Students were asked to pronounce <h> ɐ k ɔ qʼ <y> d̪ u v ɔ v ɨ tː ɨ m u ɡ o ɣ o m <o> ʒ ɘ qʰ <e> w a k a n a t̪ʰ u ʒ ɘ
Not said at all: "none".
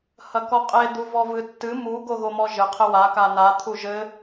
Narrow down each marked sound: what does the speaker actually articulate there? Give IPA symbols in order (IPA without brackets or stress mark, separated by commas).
h, e, ɔ, ɘ